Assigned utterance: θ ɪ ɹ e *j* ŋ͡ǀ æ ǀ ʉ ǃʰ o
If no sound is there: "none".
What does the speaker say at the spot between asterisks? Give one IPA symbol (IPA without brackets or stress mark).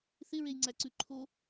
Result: j